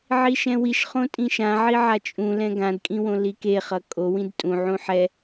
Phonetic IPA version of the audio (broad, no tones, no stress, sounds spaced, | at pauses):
ʕ i ʃ ɛ̃ w i ʃ χ õ tʼ ĩ ʃ ã ʕ i ʕ a t͡ʃʼ ũ l ɛ̃ ɡ ã d kʼ ĩ w õ l i k e χ ʌ kʼ o w ĩ d tʼ ũ ʕ ũ ħ ɛ